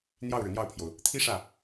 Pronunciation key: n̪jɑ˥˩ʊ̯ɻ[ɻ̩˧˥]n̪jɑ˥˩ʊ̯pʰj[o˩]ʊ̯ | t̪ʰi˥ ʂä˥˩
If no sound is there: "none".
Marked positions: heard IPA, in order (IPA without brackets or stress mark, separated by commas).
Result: ɻ̩˩, o˩